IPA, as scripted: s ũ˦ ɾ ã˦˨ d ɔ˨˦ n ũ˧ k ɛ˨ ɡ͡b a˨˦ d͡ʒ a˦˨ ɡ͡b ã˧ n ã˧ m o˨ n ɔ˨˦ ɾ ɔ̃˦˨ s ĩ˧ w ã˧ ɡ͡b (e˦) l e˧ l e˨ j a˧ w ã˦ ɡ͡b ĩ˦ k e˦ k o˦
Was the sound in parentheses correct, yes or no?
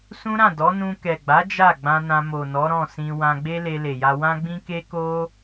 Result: yes